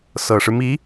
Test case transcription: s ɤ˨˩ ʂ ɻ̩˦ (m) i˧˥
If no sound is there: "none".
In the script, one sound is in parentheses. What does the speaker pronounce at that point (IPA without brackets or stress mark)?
m